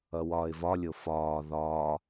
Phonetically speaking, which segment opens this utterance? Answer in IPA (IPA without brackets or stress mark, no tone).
ʌ